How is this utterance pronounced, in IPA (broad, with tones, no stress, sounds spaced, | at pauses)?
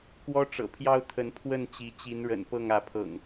k w ɔ˦ ʈ͡ʂ ɤ̰˨˩ pʰ j ɑ˦ ʊ̯ t̪ʰ ə˨˦ n pʰ w ə˥˨ n t͡ɕ i˨˦ t͡ɕ i˨˦ n ɻ ə̰˨˩ n p ɤ˥˨ ŋ ä˨˦ pʰ ɤ̰˨˩ ŋ